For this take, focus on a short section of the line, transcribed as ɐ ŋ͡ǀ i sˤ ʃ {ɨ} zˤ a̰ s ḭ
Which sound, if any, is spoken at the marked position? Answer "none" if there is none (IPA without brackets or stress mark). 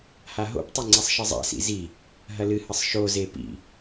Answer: ɨ